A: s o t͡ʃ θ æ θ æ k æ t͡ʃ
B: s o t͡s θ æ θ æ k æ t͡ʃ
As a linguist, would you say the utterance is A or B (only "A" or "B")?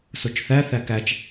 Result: A